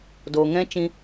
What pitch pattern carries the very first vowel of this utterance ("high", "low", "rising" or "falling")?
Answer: low